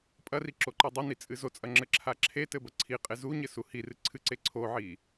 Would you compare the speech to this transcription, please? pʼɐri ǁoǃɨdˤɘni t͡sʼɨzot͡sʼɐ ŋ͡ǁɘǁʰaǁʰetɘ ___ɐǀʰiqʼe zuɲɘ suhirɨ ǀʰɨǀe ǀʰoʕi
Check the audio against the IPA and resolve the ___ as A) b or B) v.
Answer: A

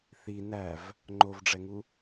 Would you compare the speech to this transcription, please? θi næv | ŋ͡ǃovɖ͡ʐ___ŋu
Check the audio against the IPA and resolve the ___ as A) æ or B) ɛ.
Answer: B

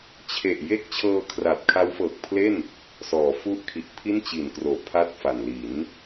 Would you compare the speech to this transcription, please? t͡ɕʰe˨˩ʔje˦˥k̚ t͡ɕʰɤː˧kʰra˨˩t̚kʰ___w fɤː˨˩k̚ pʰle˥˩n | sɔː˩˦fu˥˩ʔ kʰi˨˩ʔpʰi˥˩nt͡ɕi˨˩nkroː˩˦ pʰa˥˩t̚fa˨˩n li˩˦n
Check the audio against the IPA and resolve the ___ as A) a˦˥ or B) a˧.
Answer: A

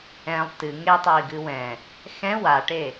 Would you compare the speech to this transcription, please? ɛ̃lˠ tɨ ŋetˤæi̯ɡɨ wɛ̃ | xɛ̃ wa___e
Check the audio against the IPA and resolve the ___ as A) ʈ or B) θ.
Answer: A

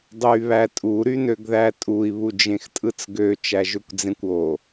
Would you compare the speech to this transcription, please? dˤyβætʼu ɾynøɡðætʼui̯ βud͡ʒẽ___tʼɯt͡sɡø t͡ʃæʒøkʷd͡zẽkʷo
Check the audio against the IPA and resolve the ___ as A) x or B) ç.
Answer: A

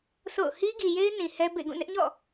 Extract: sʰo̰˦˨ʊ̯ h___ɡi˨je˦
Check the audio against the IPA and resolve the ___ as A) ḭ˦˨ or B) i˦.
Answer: B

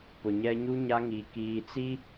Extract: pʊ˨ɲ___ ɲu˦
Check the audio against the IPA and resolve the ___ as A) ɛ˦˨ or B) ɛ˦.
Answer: B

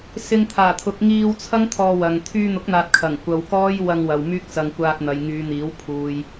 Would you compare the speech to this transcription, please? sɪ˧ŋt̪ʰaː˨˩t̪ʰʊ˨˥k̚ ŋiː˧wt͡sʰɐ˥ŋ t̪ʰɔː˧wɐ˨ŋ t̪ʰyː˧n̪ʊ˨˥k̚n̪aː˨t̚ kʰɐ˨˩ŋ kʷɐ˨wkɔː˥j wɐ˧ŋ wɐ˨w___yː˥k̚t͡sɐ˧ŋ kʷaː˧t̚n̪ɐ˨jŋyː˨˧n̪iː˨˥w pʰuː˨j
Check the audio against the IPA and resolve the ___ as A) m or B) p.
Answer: A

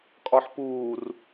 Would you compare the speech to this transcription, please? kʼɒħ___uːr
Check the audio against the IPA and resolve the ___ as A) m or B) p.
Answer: B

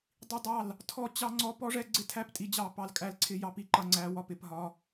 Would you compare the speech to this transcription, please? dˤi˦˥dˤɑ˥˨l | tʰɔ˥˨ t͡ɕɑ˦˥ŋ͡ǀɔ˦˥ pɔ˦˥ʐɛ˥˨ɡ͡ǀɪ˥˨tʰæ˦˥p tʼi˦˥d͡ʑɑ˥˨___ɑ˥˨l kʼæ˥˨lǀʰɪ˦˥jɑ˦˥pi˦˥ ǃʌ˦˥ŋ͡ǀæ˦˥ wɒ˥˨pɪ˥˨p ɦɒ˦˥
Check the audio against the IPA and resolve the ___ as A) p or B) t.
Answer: A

